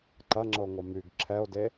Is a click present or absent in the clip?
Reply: present